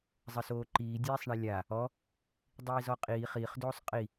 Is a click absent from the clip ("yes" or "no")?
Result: no